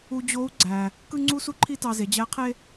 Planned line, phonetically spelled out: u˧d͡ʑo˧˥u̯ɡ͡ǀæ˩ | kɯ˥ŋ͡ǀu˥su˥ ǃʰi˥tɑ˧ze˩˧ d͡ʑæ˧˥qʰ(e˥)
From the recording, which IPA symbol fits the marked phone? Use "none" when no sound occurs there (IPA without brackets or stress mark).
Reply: e˥